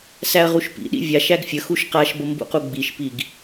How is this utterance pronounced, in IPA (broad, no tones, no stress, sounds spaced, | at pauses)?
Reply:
s æ ɐ̯ ʁ u ʃ p ḭ ɗ ḭ vʲ a ʃ æ ɡ fʲ ə x u ʃ q a ʃ b ə m b ṵ q u ɡ͡b i ʃ p i ɡ